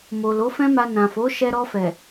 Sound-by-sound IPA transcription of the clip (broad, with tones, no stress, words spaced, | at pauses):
mo˨ lo˨˦fɛ̃˦ma˧ nã˨fo˨˦ʃɛ˧ ɾɔ˧fɛ˨